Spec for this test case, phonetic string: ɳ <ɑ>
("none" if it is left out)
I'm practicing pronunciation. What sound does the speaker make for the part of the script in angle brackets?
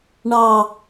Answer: ɑ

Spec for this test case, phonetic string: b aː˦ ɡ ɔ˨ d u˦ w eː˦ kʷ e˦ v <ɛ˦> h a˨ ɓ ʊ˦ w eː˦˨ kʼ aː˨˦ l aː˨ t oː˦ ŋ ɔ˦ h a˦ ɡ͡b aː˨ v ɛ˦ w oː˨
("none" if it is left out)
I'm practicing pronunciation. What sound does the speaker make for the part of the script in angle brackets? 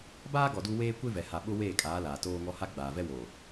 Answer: ɛ˨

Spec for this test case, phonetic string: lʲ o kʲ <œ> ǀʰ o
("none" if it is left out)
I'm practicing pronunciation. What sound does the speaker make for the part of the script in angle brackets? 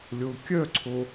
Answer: œ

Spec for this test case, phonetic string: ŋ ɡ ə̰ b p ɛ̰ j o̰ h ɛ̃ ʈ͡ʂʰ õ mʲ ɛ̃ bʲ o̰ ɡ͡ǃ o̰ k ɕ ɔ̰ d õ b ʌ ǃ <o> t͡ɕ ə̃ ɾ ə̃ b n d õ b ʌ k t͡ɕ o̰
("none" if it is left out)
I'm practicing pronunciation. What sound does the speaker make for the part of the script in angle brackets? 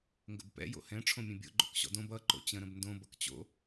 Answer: o̰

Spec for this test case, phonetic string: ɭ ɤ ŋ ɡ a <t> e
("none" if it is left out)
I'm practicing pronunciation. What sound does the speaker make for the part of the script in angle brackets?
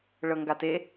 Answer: t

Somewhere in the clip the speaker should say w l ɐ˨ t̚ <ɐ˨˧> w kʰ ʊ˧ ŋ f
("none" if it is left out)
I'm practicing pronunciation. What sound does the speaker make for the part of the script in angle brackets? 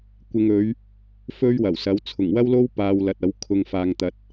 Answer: ɐ˨˥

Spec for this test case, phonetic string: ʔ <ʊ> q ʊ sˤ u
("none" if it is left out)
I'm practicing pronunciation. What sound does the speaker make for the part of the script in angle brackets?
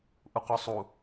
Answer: u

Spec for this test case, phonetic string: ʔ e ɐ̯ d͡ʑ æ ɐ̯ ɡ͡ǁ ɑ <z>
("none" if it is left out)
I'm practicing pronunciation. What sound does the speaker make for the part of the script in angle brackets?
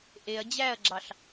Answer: ɬ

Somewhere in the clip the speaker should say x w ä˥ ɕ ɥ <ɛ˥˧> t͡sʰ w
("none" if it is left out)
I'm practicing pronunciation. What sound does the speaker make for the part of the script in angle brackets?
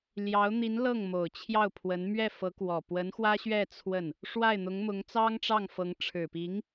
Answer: ɛ˥˧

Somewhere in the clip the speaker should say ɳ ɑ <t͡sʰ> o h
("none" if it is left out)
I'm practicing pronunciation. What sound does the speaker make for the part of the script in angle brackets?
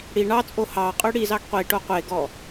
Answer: t͡sʼ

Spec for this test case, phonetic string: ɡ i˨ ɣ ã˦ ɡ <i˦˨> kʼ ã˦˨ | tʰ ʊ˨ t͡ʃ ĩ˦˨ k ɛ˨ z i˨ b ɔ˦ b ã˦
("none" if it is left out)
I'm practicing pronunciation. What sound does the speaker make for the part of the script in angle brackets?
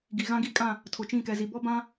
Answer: i˦˨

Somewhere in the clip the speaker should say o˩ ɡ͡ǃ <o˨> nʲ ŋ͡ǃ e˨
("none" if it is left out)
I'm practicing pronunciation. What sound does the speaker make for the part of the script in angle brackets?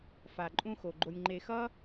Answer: o˨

